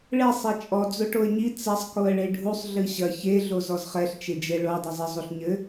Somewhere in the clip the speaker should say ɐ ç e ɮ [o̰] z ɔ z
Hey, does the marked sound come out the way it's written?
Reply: no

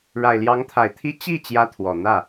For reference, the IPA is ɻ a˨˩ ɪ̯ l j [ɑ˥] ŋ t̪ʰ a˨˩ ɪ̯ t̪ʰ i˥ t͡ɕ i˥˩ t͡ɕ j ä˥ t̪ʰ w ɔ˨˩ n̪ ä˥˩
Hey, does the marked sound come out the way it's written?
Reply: no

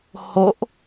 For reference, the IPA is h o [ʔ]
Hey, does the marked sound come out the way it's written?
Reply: yes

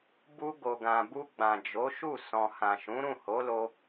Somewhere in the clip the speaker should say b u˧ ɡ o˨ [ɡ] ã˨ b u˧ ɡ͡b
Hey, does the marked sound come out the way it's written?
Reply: yes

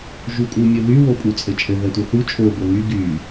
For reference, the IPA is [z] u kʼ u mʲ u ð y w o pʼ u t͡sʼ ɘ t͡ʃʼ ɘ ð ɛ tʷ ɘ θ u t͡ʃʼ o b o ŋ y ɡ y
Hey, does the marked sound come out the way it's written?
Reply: no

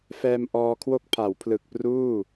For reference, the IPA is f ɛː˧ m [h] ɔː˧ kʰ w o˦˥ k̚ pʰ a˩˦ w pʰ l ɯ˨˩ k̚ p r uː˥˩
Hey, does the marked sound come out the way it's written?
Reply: no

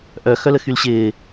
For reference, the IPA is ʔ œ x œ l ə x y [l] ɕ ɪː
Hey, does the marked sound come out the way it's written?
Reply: yes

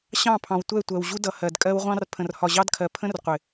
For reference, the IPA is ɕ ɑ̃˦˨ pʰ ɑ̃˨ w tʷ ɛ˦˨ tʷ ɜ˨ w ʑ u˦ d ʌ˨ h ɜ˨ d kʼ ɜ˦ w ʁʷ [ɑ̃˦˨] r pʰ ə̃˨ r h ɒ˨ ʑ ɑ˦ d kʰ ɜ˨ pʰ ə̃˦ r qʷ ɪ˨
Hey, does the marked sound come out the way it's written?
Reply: no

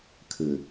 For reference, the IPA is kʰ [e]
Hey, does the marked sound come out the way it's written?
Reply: no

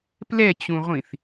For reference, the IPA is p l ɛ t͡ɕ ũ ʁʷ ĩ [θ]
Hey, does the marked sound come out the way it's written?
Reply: yes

